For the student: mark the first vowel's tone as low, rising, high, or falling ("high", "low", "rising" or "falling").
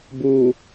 low